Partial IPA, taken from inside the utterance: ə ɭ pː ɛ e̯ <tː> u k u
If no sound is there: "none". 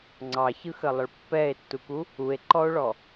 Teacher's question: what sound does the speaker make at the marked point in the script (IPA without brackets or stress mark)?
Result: tː